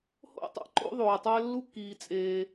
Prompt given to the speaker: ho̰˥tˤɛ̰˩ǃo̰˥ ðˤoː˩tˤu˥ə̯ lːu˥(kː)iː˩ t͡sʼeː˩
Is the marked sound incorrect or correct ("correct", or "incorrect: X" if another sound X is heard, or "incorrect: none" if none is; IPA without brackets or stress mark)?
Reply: correct